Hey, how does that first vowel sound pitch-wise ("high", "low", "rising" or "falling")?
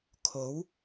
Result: rising